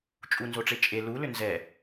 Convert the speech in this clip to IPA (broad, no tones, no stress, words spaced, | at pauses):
t͡ʃʼunzoʈ͡ʂe t͡ʃʼe lulʏ nzɛ